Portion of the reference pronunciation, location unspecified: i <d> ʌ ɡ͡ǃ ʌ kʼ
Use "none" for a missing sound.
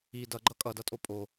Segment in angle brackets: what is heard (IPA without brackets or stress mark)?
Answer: d